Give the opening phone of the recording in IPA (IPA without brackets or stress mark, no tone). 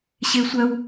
ɕ